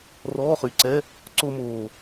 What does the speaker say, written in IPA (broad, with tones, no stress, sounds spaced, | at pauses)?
r ɔː˧˥˧ χ y˨˩ ǀ ɛ˧˥˧ | ǀ o˧ m oː˨˩